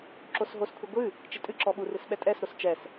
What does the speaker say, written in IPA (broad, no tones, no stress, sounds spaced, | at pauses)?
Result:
ǁ o s ɦ o s kʷʰ i ɡʷ ɨ | t͡ʃ i tʼ ɨ ǁ ɔ ɓ u r ɨ s ɓ ɛ tʼ ɛ s ɾ o s t͡ʃ ɛ s